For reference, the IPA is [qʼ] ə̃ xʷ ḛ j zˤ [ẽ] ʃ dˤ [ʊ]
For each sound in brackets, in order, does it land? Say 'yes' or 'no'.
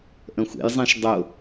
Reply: no, yes, yes

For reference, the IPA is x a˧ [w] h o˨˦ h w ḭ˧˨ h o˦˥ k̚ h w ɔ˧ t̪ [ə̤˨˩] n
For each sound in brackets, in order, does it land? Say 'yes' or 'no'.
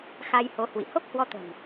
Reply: no, yes

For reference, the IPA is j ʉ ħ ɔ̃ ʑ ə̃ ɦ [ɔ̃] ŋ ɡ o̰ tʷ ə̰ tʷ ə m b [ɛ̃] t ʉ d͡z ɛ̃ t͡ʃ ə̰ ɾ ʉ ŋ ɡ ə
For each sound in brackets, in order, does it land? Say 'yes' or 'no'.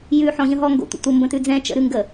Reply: no, no

